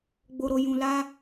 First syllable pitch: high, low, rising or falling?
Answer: low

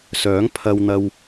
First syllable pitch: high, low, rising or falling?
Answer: rising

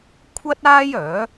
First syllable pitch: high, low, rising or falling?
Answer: high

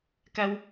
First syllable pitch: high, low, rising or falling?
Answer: high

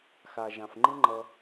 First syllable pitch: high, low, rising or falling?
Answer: low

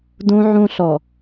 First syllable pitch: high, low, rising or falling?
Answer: high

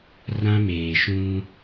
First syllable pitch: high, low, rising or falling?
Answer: high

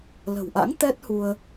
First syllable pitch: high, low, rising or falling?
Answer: low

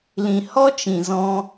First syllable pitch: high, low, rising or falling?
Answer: low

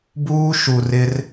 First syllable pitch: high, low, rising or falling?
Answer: high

